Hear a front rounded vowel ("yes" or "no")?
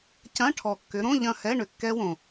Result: yes